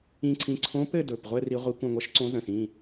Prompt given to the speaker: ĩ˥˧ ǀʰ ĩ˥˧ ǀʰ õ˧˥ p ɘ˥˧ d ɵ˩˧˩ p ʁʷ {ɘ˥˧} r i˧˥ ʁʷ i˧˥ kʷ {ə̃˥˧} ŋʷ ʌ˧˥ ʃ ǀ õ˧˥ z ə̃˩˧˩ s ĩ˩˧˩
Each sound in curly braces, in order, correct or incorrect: correct, correct

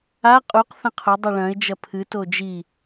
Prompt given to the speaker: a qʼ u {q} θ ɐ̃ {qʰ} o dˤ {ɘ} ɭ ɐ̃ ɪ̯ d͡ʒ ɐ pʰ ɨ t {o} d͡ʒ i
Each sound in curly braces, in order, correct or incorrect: correct, correct, incorrect: e, correct

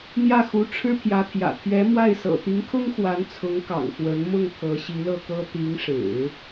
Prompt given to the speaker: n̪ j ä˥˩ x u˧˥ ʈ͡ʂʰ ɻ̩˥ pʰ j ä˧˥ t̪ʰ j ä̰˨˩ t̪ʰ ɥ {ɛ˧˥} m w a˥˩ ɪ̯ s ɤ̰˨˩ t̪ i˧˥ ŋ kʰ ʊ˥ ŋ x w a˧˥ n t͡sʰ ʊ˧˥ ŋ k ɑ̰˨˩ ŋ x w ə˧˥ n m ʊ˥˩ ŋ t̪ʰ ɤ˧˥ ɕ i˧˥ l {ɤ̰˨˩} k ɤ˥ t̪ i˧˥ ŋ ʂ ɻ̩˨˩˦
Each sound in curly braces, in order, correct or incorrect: correct, incorrect: ɤ˥˩

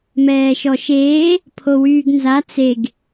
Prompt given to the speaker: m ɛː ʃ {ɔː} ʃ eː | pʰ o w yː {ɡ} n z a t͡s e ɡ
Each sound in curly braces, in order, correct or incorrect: incorrect: ɔ, correct

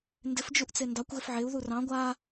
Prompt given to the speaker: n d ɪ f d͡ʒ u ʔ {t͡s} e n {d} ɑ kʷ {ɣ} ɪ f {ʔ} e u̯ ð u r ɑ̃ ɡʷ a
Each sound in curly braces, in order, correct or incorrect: correct, correct, correct, incorrect: ʕ

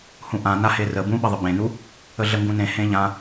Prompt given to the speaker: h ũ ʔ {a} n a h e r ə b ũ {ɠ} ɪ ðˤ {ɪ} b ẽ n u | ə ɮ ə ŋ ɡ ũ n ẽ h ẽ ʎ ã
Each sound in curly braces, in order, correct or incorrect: incorrect: ã, incorrect: ɓ, incorrect: ə

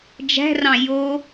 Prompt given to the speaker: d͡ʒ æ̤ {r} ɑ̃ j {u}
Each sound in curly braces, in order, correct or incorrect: correct, incorrect: o

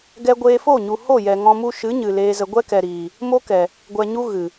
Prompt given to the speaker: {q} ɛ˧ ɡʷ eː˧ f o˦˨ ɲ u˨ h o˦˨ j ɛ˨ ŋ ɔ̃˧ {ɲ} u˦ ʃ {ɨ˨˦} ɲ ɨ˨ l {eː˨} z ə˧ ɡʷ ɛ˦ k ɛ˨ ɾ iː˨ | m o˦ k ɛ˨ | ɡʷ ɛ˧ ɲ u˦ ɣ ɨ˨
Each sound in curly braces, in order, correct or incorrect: incorrect: ɡ, incorrect: m, correct, incorrect: eː˧

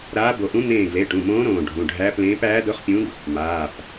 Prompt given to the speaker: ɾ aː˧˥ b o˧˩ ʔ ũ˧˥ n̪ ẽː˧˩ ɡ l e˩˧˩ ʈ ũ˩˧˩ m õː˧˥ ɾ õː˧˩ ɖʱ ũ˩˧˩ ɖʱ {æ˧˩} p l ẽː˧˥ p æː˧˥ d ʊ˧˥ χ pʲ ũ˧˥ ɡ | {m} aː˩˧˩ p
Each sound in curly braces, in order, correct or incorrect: incorrect: æ˧˥, correct

